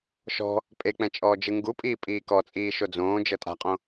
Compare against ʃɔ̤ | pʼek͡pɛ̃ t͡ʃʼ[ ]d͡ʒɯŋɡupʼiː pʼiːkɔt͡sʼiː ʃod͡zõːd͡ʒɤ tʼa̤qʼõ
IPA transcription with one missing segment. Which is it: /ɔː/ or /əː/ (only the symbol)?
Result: ɔː